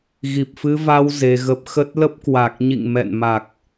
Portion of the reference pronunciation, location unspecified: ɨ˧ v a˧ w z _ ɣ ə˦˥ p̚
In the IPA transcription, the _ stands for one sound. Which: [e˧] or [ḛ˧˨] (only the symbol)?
e˧